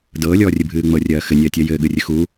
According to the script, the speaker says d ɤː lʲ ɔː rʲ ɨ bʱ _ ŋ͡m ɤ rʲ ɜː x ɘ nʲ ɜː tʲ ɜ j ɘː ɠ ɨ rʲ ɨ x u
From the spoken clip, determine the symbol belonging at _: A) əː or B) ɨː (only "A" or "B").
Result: B